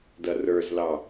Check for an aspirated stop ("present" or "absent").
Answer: absent